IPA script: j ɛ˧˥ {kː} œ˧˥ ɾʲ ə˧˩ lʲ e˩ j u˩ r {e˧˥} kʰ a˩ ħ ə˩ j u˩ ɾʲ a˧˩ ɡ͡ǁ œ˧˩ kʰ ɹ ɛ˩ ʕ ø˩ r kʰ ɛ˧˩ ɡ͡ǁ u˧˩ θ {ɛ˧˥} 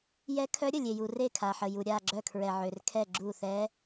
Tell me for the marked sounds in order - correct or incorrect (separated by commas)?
incorrect, incorrect, correct